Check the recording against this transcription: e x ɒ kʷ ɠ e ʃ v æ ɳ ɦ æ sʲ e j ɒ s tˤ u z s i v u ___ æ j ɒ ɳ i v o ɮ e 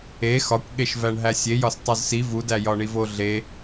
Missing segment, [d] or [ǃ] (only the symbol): d